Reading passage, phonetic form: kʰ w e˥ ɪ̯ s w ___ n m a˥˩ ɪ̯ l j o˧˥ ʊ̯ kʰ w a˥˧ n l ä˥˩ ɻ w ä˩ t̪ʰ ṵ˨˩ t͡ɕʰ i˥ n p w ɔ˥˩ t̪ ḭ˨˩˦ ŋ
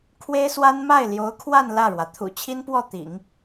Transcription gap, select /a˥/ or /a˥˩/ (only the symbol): a˥